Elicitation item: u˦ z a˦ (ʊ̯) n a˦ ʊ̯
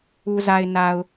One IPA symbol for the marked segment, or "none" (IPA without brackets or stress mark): ɪ̯